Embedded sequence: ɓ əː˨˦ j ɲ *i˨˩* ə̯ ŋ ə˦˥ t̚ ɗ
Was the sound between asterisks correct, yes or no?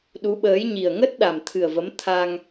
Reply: yes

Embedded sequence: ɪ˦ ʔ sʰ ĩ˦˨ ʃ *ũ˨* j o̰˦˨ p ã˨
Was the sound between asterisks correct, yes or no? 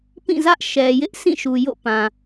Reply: no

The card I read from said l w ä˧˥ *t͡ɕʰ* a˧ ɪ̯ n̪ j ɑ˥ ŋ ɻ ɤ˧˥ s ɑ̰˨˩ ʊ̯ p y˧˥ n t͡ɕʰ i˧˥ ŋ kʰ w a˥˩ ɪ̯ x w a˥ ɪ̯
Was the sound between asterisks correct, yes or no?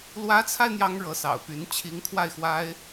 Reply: no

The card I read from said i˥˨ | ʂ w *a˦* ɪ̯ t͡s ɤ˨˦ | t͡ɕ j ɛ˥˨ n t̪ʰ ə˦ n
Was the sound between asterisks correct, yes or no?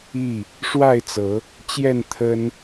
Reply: no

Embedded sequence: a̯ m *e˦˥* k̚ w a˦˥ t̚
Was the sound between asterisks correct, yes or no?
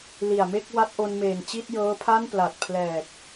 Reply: no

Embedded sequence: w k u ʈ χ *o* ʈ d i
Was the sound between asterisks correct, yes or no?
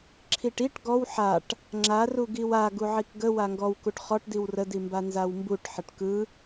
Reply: no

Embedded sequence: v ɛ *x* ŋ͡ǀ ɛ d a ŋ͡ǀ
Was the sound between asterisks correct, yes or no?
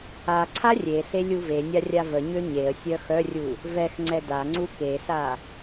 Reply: yes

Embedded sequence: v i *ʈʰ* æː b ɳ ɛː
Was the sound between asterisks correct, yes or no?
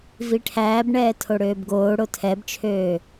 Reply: yes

